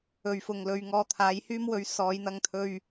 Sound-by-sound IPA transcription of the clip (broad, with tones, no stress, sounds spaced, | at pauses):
ɵ˨ ɥ f ʊ˨ ŋ l ɵ˨˧ ɥ ŋ ɔː˧ t̪ʰ aː˨˥ j h yː˥ m w ɵ˨˥ ɥ s ɔː˨˧ j n̪ ɐ˧ ŋ t̪ʰ ɵ˧ ɥ